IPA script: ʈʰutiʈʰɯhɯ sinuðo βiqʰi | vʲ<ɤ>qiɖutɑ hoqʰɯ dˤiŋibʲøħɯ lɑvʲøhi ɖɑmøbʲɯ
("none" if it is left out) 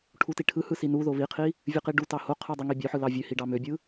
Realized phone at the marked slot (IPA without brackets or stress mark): ɯ